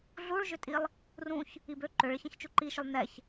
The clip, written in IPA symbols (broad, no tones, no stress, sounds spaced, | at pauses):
ɮ u ɭ ʒ ʏ tʼ i lˠ | r ũ ç | i b ø ǃ ø ɭ ɪ ç ɛ̃ ç t͡ʃ u ǃ i ʃ ʏ lˠ n ɛ ç